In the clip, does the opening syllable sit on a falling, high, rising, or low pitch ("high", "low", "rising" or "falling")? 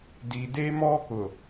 low